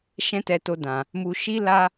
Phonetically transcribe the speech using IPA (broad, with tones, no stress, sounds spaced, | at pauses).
ʃ ɛ̃˦ t ɛ˧ t o˦ d ã˧ | m u˧ ʃ i˦ l a˦